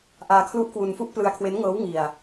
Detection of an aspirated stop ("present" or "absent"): present